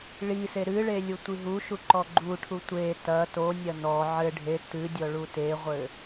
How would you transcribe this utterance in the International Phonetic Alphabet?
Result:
ɭ i s e ɾ ɨ ɭ e lʲ u tʷ i ɦ u ʃ u ǃ ɔ ɡ͡ǃ u ʈʰ u tʷ e t ɐ t o nʲ ɐ n ɔ ʕ ɘ ɖʱ e t ɨ dʲ ɔ ɭ u t e ʁʷ ɘ

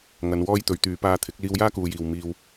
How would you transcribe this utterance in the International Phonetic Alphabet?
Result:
ŋ ɐ˨˧ n w ɔː˥ j t̪ ɵ˨˧ ɥ t̪ yː˨˧ p aː˧ t̪ʰ ɪ˨˥ k̚ l iː˧ w j aː˥ k uː˨ j iː˨ w m iː˧ w

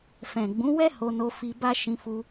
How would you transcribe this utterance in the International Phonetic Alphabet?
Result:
f ɛ̃˨ ɡ͡b ũ˨˦ w ɛ˦ h o˧ n o˧ f i˧ b a˦ ʃ ĩ˧ f u˧

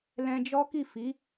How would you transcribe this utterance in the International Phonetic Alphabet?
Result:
l ɛ̃˧ d͡ʒ ɔ˦ k i˦˨ f i˨˦

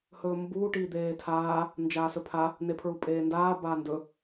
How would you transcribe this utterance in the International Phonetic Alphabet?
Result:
h ɵː m b uː ʈ iː d̪ eː tʰ aː | n d͡ʒ aː s ɵ pʰ a | n e pʰ ɹ u pʼ eː n d aː b aː n d ɵ

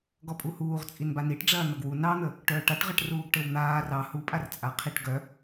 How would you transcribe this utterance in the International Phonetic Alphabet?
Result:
ɡ ɔ pʼ u h uː ʁ t͡sʼ i n b a n i ʈ ɖ͡ʐ ɐː n̪ ɐ ɡ w u n ɑ n̪ ə | ʈ œː ʈ a ʈ ʁ ɐ ʈ r uː ɡ ʈ ɘ w n̪ aː r ɑ h u pʼ a r t͡sʼ a qʰ i ʈ ɡ œ

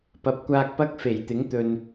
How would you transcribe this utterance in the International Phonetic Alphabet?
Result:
p ɐ˨˥ p̚ kʷ aː˧ k̚ p ɐ˥ k̚ f e˨˩ j t̪ ɪ˨˥ ŋ t̪ ɵ˨ n

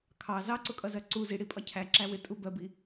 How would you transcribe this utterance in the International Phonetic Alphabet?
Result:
kʰ ɑ z ɑ ǀ ʊ kʼ ʌ z ɜ ǀ u z i ɽ i pʼ ɒ cʰ æ ǁ æ w ɪ tʼ u b ɜ b i

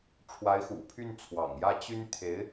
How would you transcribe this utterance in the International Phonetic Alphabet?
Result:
ʈ͡ʂʰ w a˧˥ ɪ̯ x ṵ˨˩ pʰ y˥˩ n t͡sʰ w ɑ̰˨˩ ŋ j ä˥˩ t͡ɕ y˥ n t̪ʰ e˧˥ ɪ̯

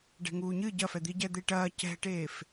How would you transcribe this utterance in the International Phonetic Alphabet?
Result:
ɖ ɛ̤ ŋ uː ɲ ɨ ɟ ɐ f ɛ d̪ i ɟ ɛ d̪ e ʈ ɐː c ɛ̤ ʈ eː f

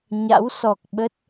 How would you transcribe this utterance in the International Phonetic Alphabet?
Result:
ɲ a̰˧˥ w s ɔ˨˩ k̚ ɓ ə˦˥ t̚

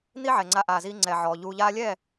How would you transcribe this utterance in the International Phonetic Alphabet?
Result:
n̪ i˦ ʕ ɛ˨ ŋ͡ǀ a˧ ʔ aː˨ z iː˧ ŋ͡ǀ ɛ˨ ʕ ɔː˨ ʎ uː˧ ʎ aː˦ lʲ ɛ˦˨

